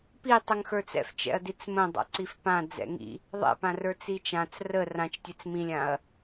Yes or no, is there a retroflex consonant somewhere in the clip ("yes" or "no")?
no